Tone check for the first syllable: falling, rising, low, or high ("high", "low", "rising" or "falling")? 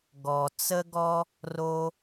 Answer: high